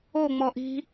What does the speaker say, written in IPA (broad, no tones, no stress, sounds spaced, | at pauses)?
o ŋ͡m ɔ ʔ i̤